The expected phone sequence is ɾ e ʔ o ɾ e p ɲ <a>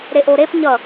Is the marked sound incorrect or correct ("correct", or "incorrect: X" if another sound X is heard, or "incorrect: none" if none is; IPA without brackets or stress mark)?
incorrect: ʌ